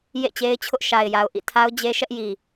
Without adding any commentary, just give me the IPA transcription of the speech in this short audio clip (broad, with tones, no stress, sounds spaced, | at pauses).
j ḛ˦˨ t͡ɕ e˦ ɪ̯ t͡ɕʰ ʊ˦ ʔ ʃ a˨ ɪ̯ j a˨ ʊ̯ ʔ ḭ˦˨ tʰ a˦ ʊ̯ d͡ʑ e˦ ʃ ɛ˦ ʔ j i˨